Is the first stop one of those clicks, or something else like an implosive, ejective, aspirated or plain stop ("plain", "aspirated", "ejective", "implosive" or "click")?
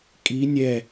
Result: ejective